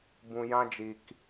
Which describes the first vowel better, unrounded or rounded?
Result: rounded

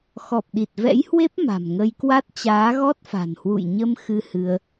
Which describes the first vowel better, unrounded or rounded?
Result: rounded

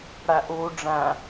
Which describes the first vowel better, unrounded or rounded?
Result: unrounded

